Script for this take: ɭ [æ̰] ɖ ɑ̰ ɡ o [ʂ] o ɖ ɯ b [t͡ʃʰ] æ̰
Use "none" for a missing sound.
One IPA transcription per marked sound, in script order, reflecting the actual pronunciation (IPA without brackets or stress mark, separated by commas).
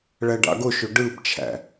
æ, ʃ, t͡ʃʰ